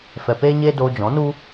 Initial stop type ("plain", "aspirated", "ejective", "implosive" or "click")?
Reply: plain